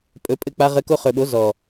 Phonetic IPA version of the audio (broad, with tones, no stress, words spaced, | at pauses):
pʼɵ˨˦pʼɘ˧k͡pa˧ ʁɘ˧ ko˧χɵ˨ɓo˨˦ zɔ˨